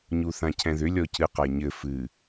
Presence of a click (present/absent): absent